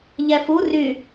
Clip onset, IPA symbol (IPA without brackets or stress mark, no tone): ʎ